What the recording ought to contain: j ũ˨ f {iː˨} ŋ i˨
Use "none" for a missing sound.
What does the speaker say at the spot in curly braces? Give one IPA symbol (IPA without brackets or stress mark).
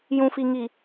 i˨